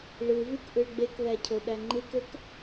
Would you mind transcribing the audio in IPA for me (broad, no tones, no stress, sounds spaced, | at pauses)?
ɭ ɯ v y k ʔ ɯ ɭ ɡ͡b e k ð æ cʰ o ɗ æ ŋ͡ǃ ɯ k ø k